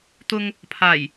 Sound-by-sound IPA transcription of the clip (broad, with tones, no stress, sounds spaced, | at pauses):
t̪ ʊ˧ ŋ | pʰ aː˨˩ j